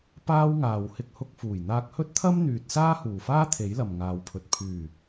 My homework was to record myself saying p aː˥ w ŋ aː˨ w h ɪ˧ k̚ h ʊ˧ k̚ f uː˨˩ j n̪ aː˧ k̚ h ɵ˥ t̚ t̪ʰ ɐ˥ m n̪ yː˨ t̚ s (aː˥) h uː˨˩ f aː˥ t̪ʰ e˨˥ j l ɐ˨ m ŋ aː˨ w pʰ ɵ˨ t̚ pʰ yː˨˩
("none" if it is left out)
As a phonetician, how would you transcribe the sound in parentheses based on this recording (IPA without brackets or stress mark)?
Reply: aː˥